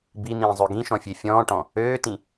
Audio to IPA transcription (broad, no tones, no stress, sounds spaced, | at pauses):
b i n̪ ĩː zˤ ø ɡ ĩ ʃ ɔ̃ fʲ e fʲ ɔ̃ː ʈ ɔ̃ | øː t ĩ